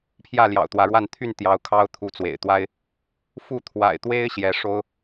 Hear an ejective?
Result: no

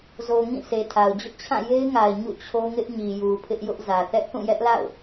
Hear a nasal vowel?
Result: yes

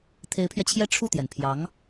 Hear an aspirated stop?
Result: yes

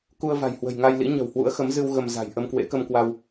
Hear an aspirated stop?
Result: no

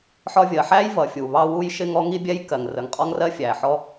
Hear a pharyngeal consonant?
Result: yes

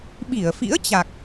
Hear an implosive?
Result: yes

